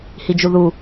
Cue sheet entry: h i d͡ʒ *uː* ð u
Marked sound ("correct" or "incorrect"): incorrect